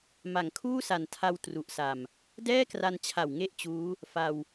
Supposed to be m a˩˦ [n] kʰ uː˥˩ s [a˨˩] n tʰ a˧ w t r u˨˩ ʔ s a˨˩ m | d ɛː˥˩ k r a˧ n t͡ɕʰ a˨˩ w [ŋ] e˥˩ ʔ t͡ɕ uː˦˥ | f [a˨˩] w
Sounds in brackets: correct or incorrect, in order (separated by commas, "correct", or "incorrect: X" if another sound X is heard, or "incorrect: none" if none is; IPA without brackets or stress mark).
incorrect: ŋ, correct, correct, incorrect: a˧